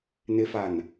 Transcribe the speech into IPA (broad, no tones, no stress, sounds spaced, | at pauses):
n ɪ f a n